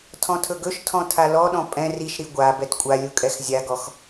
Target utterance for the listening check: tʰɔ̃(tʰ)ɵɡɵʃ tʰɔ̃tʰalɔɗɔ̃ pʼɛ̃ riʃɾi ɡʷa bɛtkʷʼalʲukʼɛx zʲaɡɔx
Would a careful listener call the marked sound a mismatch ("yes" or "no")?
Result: no